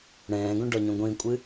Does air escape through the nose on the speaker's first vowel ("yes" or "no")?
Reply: yes